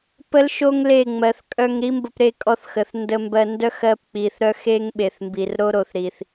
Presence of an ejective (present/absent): present